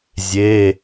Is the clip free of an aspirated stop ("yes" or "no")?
yes